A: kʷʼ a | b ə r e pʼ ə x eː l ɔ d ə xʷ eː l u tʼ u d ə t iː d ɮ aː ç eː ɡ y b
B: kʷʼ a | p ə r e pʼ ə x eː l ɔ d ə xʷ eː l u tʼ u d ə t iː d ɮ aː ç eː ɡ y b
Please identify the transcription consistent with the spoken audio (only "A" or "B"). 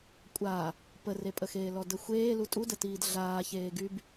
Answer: B